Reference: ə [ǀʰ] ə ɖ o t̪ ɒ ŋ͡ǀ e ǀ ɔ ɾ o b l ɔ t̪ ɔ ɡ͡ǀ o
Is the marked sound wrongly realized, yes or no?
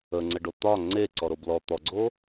yes